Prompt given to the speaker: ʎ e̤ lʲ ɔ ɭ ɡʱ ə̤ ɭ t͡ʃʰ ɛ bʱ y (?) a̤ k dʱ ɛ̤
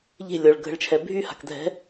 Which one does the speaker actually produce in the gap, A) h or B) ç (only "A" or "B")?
A